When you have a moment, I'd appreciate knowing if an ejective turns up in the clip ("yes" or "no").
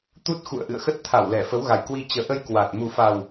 no